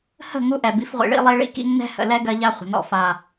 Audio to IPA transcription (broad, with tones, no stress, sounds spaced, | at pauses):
h ə̤˦˨ ŋ u˦ ʔ ɛ˨ b i˨˦ f ʁʷ ḭ˨ ɭ ḭ˦ lˠ i˦ ɭ ḭ˦ k ḭ˦ ŋ n ɛ̤˦ h ə̰˨ l ɛ˦ ɡ ɜ˦ ʎ a˦ χʷ ə̤˨ n ɔ̰˦˨ f a˨